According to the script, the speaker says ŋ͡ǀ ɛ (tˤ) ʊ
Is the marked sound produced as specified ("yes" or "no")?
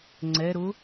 no